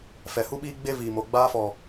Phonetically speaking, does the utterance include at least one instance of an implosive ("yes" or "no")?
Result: yes